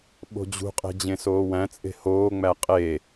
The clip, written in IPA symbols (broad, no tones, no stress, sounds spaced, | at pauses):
ɓ o̤ d͡ʑ ṳ qʼ e̤ d͡ʑ ẽ s oː w æ̃ t͡sʼ e̤ h oː ŋ͡m æ qʼ e